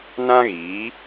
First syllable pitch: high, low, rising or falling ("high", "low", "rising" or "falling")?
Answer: high